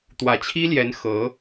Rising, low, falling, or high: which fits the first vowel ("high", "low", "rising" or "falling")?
low